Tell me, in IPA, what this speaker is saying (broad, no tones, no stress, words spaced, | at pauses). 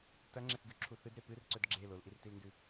tɐŋ͡ǁeθɡʉǁʰu θɨdɾe pɨrǀɵd ɡ͡ǁe lolʔirtilndʉ